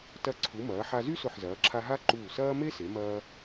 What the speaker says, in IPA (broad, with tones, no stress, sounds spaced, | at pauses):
t ɐ˧ ǀʰ u˩˧ m ɐː˩˧ ħ a˧ z y˥ s ʊ˧˩ ħ z ɐː˩˧ ǁʰ a˧ ɦ a˥ ǃ uː˧˩ s ɐː˥ m e˥ s e˩˧ m ɐː˧